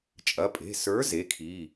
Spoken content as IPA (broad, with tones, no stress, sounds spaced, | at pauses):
t͡ʃʼ ɐ˩˧˩ pʼ e̤˩˧˩ s ə˞˨˥ z e˩˧˩ kʰ iː˩˧˩